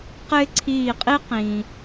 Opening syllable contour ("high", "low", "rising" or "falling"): high